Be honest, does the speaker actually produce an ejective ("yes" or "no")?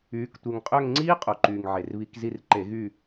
yes